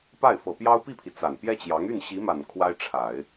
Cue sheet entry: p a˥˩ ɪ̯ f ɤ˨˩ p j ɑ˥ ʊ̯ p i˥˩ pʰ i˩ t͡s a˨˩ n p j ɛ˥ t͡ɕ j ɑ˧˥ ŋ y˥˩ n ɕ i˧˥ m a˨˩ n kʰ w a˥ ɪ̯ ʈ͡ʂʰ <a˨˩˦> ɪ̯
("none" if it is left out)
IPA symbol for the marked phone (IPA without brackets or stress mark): a˨˩˦